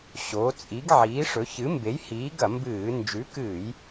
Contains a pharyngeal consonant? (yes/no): yes